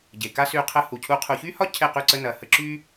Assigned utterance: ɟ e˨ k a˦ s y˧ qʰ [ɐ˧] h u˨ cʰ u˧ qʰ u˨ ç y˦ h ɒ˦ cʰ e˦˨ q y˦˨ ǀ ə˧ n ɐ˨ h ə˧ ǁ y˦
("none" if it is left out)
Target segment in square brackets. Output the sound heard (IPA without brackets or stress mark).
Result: ə˧